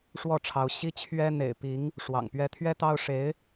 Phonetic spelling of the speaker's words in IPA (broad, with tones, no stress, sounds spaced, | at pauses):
ʂ w ɔ˥˩ ʈ͡ʂʰ ɑ˧˥ ʊ̯ ɕ i˥ t͡ɕʰ ɥ ɛ˥ n̪ ḛ˨˩ ɪ̯ p i˧˥ ŋ | ʂ w ɑ̰˨˩ ŋ p ɥ ɛ˥ t̪ʰ ɥ ɛ˥ t̪ ɑ˥ ʊ̯ ʂ e˧˥ ɪ̯